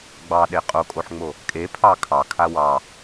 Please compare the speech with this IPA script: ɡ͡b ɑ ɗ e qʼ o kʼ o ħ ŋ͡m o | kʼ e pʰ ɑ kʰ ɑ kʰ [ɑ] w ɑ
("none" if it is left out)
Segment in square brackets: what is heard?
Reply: a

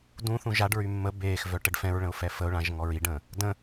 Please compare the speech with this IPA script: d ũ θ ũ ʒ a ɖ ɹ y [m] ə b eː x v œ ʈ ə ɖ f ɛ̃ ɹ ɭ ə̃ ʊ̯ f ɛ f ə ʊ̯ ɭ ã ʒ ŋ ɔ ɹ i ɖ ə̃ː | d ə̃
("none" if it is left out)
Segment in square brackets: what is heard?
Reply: mː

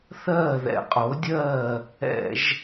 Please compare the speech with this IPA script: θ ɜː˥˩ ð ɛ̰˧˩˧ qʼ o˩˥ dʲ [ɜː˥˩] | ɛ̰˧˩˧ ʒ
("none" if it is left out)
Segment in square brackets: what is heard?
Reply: ɜː˥˩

